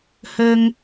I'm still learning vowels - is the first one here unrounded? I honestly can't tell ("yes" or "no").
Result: yes